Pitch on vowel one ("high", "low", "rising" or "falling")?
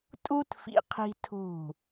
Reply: high